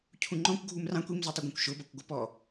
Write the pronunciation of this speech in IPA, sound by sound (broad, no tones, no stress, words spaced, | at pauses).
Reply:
cʰũŋ͡ǃɔ̃kʷ ɡʱumrɑ̃kʷ imzʊtˤɪɡʷɑ̃kʷ ʃʊbʌkʷɡʷəpɔ